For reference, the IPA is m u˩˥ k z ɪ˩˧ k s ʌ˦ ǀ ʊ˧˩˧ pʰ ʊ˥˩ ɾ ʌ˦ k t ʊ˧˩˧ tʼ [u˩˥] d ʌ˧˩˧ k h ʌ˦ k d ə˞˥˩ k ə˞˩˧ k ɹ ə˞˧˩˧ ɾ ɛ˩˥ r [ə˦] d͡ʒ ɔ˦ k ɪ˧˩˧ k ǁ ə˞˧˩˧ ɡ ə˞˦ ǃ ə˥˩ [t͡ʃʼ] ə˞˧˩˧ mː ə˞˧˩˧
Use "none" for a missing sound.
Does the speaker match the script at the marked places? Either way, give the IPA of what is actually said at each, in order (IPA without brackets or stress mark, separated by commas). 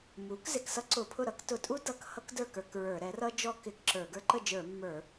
u˦, ʌ˦, d͡ʒ